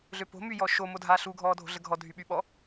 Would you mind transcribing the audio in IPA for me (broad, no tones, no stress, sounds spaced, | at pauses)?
ɮ ø p o̤ m y j ɔ ʃ o m o dʱ aː ɬ u ɡʱ ɔː dʱ o̤ ɮ ə ɡʱ ɔ dʱ y ɓ y ɓ ɔ